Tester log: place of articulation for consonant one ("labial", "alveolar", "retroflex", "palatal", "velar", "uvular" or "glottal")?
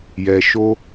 palatal